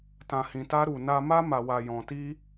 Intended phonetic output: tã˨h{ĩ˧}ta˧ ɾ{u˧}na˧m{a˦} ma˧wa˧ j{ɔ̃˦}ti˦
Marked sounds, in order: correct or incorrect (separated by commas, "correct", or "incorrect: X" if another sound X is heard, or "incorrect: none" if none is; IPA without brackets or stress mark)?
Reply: incorrect: ĩ˨, incorrect: u˨, correct, incorrect: ɔ̃˧